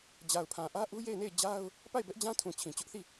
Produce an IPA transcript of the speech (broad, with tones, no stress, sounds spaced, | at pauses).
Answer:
d͡ʑ a˨ ʊ̯ pʰ ã˨ ʔ ä˦ ʔ u˦ j e˦˨ ɪ̯ n e˦˨ ɪ̯ d͡ʑ a˦ ʊ̯ | p a˦˨ ɪ̯ b ɛ˦ ʔ d͡ʑ ã˦ tʰ ũ˨ t͡ɕʰ ĩ˨ t͡ɕ ʊ˦ ʔ θ i˦˨